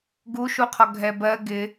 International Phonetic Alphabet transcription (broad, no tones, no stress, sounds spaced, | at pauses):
ɡ u ʃ u qʰ ɔ ɡʱ ɛ b ɜ ɡ ɪ